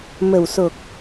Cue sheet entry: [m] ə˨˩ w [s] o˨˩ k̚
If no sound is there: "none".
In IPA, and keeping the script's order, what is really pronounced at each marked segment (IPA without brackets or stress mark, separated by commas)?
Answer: m, s